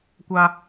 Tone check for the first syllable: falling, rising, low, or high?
high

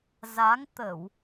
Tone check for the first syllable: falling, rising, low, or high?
rising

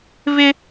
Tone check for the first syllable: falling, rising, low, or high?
high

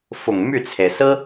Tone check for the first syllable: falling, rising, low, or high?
low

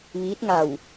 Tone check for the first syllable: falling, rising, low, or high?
rising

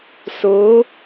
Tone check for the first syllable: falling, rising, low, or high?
rising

